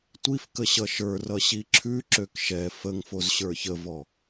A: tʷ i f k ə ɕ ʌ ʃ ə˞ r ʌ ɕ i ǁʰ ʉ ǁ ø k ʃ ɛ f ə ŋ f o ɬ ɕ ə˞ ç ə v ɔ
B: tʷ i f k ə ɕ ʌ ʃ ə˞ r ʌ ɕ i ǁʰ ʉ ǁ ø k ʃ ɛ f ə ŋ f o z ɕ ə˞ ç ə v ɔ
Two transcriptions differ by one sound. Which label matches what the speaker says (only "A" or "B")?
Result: B